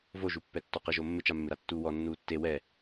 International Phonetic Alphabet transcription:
voʒupːɛ tːɔqɪʒo mːɪt͡ʃamːɪɾa tːuːwɔ nːuːtːe wɛ

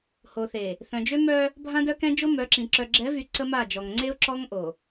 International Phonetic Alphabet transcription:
ho˨θe˨ | θœ̃˨d͡ʒø˦mœ˦ | bʱã˦dœ˦kɛ̃˦d͡ʒo˦ mœ˨˦ǁĩ˨ ǁœ˨ɡ͡ǁɛ˨˦vy˨ ǀə˦ma˦˨d͡ʒɔ˨ŋ ŋ͡ǀe˦ʊ̯ ǁɔ˦ŋ ʔo˨

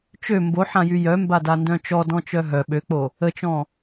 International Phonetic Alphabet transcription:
t͡ʃø mboħãjy jœmbadandœ̃ t͡ʃɔdɔ̃t͡ʃœ ɦœ ɓøk͡po | ət͡ʃɔ̃

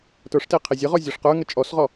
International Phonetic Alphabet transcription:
tə˞ʂte qʰezʲəʁɔ zʲɔʂqə˞ŋə t͡ʃʼɔsʁɔ

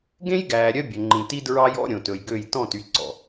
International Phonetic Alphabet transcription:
ɡẽ˦jɡæː˨ɾʲœ˧ bʲɵ˨ŋ͡ǃĩ˨ti˦dɹɑ˦j ɔ̰˧ ɾʲõ˨tɵ˨jɡø˦˨j tɔ̃˦˨ty˨ǀɔ̰˨

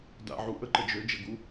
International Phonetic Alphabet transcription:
da̰ʕu ʔəǃə d͡ʒød͡ʒəɡu

